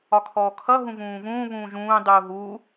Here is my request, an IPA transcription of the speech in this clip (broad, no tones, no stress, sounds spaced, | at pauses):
ɒ kʰ ɔː kʰ ʌ ɦ ũ v ũː v ũː β ũː ʒ ũː dˤ uː ɦ uː